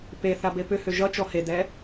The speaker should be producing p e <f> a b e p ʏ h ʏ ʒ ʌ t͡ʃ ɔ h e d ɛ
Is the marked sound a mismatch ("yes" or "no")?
yes